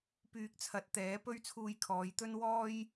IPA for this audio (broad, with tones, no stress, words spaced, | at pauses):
pyː˧k̚t͡sʰɐ˨˥t̚ t̪ɛː˨˥pɵ˥ɥ t͡sʰuː˧jkʰɔː˨˧jt̪ɵ˥n wɔː˥j